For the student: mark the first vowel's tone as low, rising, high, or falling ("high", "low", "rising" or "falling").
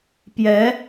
rising